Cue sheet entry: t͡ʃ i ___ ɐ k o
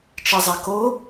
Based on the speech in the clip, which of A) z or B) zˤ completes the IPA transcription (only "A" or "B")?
B